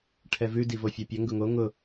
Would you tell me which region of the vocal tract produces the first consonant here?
retroflex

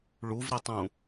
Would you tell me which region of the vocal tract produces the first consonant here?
retroflex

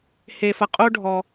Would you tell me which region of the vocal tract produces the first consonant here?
throat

